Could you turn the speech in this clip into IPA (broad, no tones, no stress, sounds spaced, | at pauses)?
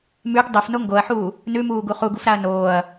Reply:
m ʉ ɡ dˤ ɵ f n o ŋ ɡ o ɐ̯ ħ uː | n ʉ m uː ɡ u χ u ɡ u f ɾ a ɐ̯ n oː ɐ̯